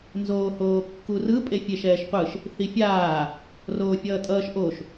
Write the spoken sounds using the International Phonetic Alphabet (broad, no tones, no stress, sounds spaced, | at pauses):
n z oː h oː kː u r ɯ pʼ e fʲ e ʃ ɛː ʃ qʷ ɯ ʃ | θ i fʲ aː | r oː fʲ ʌː tʼ ʌː ʃ ʔ o ʃ